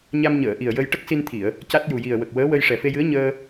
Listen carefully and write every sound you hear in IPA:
ɲ a˧ m ɲ əː˨˩˨ ʔ i˨˩ ə̯ j ə˧ j ʈ ə˦˥ k̚ s i˧ n t̪ʰ i˨˩˨ ə̯ | c a˦˥ t̚ j u˨˩ j i˨˩ ə̯ w ə˨˩ k̚ w əː˧˥ w ə˧ j ʂ ɛ˨˩ f e˧ j ɨ˧˥ ə̯ ɲ əː˧

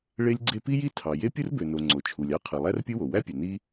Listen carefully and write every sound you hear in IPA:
ɭ e˥ lʲ ɡ͡ǀ e˥ p i˥ j i˥ tʰ ɑ˩ j e˥ pʲ ɯ˥ r b ø˩ n o˩ ŋ͡ǀ o˩ t͡ʃʰ u˩ lʲ ɑ˥ qʰ ɯ˩ lˠ æ˥ r pʲ ɯ˥ w o˩ w æ˥ pʲ ø˩ n i˥

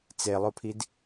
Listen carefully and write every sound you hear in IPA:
t͡s e lˠ o pʰ i d

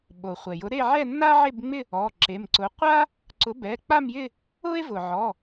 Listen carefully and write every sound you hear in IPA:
ɓ o˩ χʷ ɛ˩ j ʊ˨˥ ɾ e˥˧ ʕ ɛ˥˧ nː a˥ ʕ e˥˧ b ŋ͡m ɪ˥˧ | ɔ˩˧˩ ǁ e˩˧˩ m ǀ ʊ˨˥ qʷ a˥ | ǀ ʊ˨˥ b ɛ˩˧˩ k͡p a˥˧ m j ɪ˥˧ | ʊ˥ e̯ v ʊ˩ ʕ ɔ˩˧˩

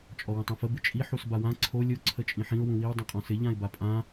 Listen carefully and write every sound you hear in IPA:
t͡ʃʼ ɔ w ə̃ tˤ õ f ə b ɪ t͡ʃʼ i ħ u s b a w ã ǀʰ o lʲ o ǀʰ ə t͡ʃʼ ĩ ħ ĩ ʊ̯ w ũ w i w dˤ õ qʼ ɔ̃ s ɪ ʎ ã ɪ̯ b a pʼ ã

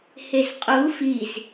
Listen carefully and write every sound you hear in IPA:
h e z qʼ u f i z

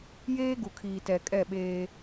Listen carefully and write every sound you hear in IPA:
j eː˦ ɡ u˨ kʰ iː˨ t ɛ˨ kʼ ɛ˦˨ ɓ eː˦

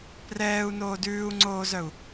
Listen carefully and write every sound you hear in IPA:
p r ɛː u̯ n oː d ʉː u̯ ŋ͡ǀ oː z œ u̯

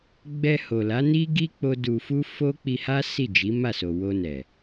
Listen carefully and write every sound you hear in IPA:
ɡ͡b ɛ˧ h o˨ l a˨˦ n i˦ ɡ i˦ k͡p o˦ d u˧ f u˦ f o˦ k͡p i˧ h a˦ s i˦˨ d͡ʒ i˨˦ m a˦˨ s o˨ w o˧ n ɛ˨

